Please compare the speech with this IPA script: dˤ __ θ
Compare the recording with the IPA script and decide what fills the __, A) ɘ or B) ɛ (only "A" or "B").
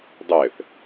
A